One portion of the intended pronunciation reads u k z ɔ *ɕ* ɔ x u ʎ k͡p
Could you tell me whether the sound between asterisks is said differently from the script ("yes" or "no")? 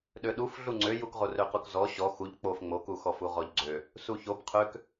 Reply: no